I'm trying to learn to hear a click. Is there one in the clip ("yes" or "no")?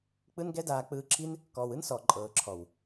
yes